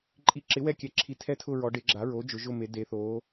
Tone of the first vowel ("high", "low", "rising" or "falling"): rising